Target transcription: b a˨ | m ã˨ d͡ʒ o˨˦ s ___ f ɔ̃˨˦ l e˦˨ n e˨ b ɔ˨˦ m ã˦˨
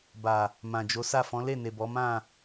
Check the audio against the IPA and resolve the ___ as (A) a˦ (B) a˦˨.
B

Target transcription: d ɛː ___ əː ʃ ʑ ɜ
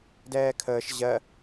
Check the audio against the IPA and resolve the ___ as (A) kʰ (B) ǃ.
A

